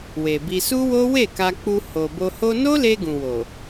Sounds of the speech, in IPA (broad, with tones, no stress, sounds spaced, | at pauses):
w e˨ b i˧ s u˦ w o˦ w e˦˨ k a˧ k͡p u˧ h o˨ b o˧ h o˧ n o˦ l e˧ ɡ ũ˨ w o˨